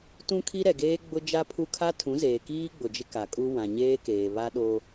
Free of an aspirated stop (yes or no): no